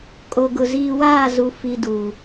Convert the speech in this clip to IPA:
kʼ o˨ ɡ ʊ˨ z iː˨ w aː˦˨ z u˨ f i˦ d u˨

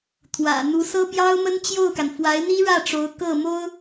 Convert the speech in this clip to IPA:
t̪ʰ w ä̰˨˩ n̪ u˧˥ s ɤ˥ p j ɑ˥ ʊ̯ m ə˥ n t͡ɕ j o˥˩ ʊ̯ k a˩ n f w a˧˥ ɪ̯ n̪ i˥ ɻ ä˥˩ ʈ͡ʂ o˧˥ ʊ̯ k ɤ˥˩ m o˥ ʊ̯

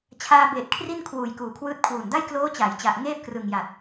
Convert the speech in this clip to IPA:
t͡ɕʰ aː˧ b eː˨˩ t̚ kʰ r i˥˩ n kʰ w uː˨˩ j k uː˨˩ kʰ w ɯː˦˥ t̚ kʰ w uː˨˩ n d a˥˩ j k l oː˦˥ t͡ɕ a˩˦ j t͡ɕ a˨˩ ʔ ŋ eː˥˩ p̚ k r ɯ˨˩ ŋ j a˨˩ t̚

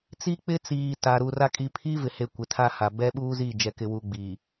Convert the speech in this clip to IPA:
t͡s i˦ k͡p ɪ˦ t͡s iː˨ t a˨ ɾ u˨ r a˦ kʼ i˨ pʰ i˦ v ɪ˨ h e˨ kʷ ɪ˨ tʰ a˦ h a˨ b ɛ˦ ɓ uː˦ z i˦˨ d͡ʒ ɛ˨ k ɪ˨ w u˨ ɡ͡b i˨

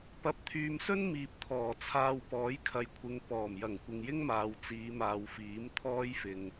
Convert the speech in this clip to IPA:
p ɐ˨˥ p̚ t̪ʰ yː˨ m s ɵ˥ n m iː˨ p̚ t̪ʰ ɔː˨˩ t͡sʰ aː˧ w p ɔː˨˥ j kʰ ɐ˨ j kʷʰ ɪ˨˧ ŋ p ɔː˨˩ m j ɐ˨˩ ŋ kʷ ɪ˨ ŋ j ɪ˥ ŋ m aː˨ w t͡s iː˨˧ m aː˨ w f iː˨˥ m t̪ʰ ɔː˥ j f ɪ˨ ŋ

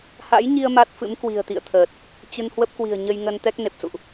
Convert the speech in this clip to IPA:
h a̰˧˥ j ɲ i˧ ə̯ m a˦˥ t̚ f ɨ̰˧˥ m k w i̤˨˩ ə̯ t̪ ḭ˧˨ ə̯ t̪ʰ əː˨˩ t̚ | t͡ɕ ɨ˧ n h w ə˦˥ p̚ k w i̤˨˩ ə̯ ɲ ə˧ j ŋ ə˧ n t̪ ɛ˦˥ k̚ n e˨˩ p̚ s ṵ˧˨ ʔ

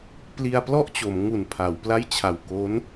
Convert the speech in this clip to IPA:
p l i˧ a̯ p l ɔ˥˩ ʔ t͡ɕ o˩˦ m ŋ u˨˩ n pʰ a˩˦ w p l a˥˩ j t͡ɕʰ a˨˩ w k o˦˥ n

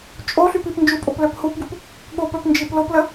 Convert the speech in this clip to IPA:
t͡ʃʼ o ɬ y p i p n d͡ʒ u pʼ o p l œ p h u p ɡ u p | ɠ o p œ p n d͡ʒ i p l o p l ə

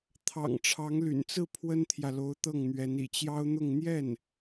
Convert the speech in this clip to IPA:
t̪ʰ ɑ̰˨˩ ŋ ʈ͡ʂʰ ɑ˧˥ ŋ l y̰˨˩ n t͡s ɹ̩˥˩ pʰ w ə˥ n t̪ʰ j ä˨ l o˧˥ ʊ̯ t̪ ɤ˥˩ ŋ n̪ ɥ ɛ˧˥ n ḭ˨˩ t͡ɕ j ɑ˥ ʊ̯ n̪ ʊ˥˧ ŋ n̪ j ɛ˥˩ n

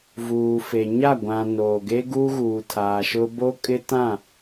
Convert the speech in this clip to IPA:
v uː˨ f e˨ ɲ a˦˨ ɡʷ ã˨ n oː˨ ɡ e˦ ɡ u˦ ɣ uː˨ tʰ aː˨ ʃ ʊ˦ b o˦ kʼ ɪ˦ t ã˦˨

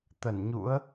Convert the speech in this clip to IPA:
t̪ ə˧˩ n ɲ ṵ˧˥ ə̯

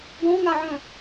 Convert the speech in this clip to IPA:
ɡ ɔ̃ ŋ a ʕ œ̃

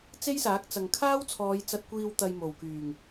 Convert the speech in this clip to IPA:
t͡s e˥ j s aː˨˥ k̚ t͡s ɐ˨ ŋ kʰ aː˥ w t͡sʰ ɔː˨˧ j t͡s ɐ˨ t̚ kʷ iː˨ w t̪ ɐ˨ j m o˨˩ w k yː˨˩ ŋ

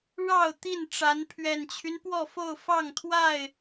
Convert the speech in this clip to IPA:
ɻ ɑ˥˨ ʊ̯ t̪ i˥˨ n ʈ͡ʂ a˨˦ n pʰ ɥ ɛ˨˩ n t͡ɕʰ y˦ n p w ɔ˥˨ f o˥˨ ʊ̯ f ɑ˥˨ ŋ t̪ʰ w a˥˨ ɪ̯

